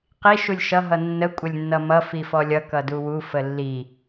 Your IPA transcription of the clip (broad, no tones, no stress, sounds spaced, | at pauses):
q i ʃ u lʲ ʃ ʌ ɦ ʌ nː ə kʷʼ ə lʲ nː ʌ m ʌ f i f ɔ lʲ ʌ k ʌ d u w u f ə lː i